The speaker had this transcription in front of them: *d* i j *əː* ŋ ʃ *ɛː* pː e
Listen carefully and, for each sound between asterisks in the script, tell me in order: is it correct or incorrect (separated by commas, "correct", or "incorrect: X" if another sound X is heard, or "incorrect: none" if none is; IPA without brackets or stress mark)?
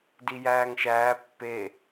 correct, incorrect: æː, incorrect: æː